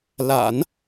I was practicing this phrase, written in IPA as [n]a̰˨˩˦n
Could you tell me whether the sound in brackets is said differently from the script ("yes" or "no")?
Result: yes